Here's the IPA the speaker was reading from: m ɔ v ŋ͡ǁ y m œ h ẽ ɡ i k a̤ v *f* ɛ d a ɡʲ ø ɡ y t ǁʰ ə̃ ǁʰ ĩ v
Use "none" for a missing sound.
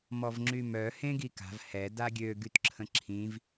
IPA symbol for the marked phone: h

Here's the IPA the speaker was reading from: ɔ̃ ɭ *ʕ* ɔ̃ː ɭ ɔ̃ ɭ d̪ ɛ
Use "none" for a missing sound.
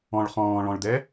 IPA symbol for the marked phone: χ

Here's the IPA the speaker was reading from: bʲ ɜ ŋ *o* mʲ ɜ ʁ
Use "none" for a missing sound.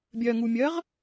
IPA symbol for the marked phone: u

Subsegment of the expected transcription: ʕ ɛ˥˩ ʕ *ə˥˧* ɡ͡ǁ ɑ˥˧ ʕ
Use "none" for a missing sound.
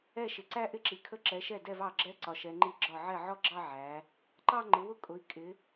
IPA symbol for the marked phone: ɔ˥˧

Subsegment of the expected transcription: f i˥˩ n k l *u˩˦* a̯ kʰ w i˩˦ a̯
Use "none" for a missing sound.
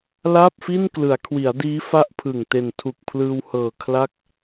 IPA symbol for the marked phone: ɯ˩˦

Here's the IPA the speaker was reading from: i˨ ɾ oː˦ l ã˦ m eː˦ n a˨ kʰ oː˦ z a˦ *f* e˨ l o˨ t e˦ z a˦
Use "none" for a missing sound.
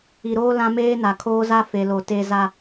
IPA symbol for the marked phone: f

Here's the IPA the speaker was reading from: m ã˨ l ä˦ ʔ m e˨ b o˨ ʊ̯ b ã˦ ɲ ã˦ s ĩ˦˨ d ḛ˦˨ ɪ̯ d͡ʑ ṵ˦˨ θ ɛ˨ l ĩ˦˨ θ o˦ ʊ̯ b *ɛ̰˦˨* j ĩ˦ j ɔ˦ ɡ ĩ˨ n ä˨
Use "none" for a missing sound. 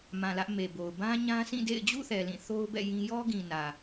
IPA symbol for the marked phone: ɛ̰˦˨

